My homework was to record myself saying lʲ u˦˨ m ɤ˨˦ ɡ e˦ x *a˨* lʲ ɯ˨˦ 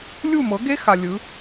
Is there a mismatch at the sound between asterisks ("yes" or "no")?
no